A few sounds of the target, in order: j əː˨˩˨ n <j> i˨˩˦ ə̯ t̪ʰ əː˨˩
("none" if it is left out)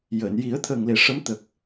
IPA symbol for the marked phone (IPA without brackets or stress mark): j